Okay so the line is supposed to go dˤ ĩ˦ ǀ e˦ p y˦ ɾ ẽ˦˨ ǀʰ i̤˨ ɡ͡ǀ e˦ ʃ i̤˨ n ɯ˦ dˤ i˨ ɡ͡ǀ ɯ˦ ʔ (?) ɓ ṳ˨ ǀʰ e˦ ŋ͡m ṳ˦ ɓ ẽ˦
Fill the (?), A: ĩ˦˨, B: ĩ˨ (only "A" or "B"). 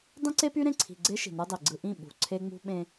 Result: A